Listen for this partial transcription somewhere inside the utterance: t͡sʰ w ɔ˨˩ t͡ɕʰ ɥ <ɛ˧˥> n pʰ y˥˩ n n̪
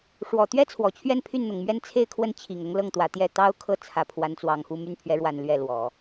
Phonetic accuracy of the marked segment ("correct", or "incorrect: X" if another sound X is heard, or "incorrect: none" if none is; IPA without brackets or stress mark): incorrect: ɛ˥˧